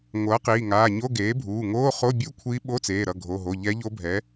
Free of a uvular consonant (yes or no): no